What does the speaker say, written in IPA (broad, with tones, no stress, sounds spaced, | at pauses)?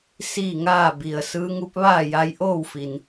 s iː˥˨ ŋ aː˥˨ b i˩ ə̯ s ɯː˧˥ ŋ u˧˥ p̚ ʋ aː˥˨ j a˧ j ʔ oː˥˨ w f i˩ n